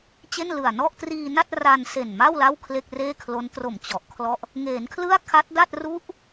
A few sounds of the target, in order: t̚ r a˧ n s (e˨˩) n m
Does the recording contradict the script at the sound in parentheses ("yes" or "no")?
no